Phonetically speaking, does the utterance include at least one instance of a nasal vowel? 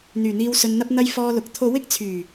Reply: no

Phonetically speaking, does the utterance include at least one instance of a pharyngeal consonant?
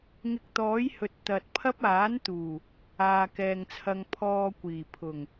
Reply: no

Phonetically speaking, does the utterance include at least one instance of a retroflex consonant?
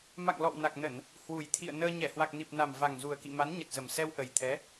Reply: no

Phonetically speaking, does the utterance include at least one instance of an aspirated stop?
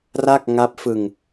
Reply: no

